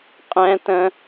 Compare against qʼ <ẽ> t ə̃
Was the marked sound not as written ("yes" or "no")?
yes